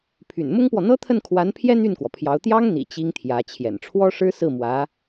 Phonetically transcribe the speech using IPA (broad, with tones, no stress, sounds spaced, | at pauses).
pʰ y̰˨˩ n m ʊ˥ ŋ p w ɔ˨ n̪ ɤ˥ t̪ʰ ə˥˩ n kʰ w a˧˥ n pʰ j ɛ˥ n̪ y˥˩ n k w ɔ˩ pʰ j ɑ˧˥ ʊ̯ t̪ j ɑ˥ ŋ n̪ ḭ˨˩ t͡ɕ i˥ ŋ t̪ʰ j ä˧˥ t͡ɕʰ j ɛ̰˨˩ n ʈ͡ʂʰ w ɔ˥ ʂ ɻ̩˥ s ɹ̩˥˩ m w ä˧˥